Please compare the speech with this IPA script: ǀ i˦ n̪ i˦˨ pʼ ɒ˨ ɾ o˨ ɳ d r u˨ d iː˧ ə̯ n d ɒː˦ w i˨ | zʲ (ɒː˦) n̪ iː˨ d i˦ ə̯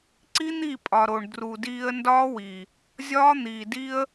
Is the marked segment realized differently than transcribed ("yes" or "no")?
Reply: no